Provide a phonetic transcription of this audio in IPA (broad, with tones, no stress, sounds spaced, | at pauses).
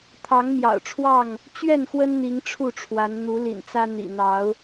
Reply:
t̪ʰ ɑ˨˦ ŋ m j ɑ̰˨˩ ʊ̯ ʈ͡ʂʰ w ɑ˥˨ ŋ | t͡ɕ ɥ ɛ˥˨ n x w ə˦ n n̪ i˨˦ ŋ ʈ͡ʂʰ u˥˨ ʈ͡ʂʰ w a˨˦ n n̪ u˨˦ l ḭ˨˩ n t͡s ä˦ n̪ ḭ˨˩ n̪ ɑ˨˦ ʊ̯